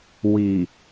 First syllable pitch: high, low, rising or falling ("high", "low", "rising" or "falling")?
low